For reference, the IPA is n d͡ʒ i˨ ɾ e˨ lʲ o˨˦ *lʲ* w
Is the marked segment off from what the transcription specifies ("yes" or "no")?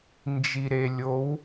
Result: yes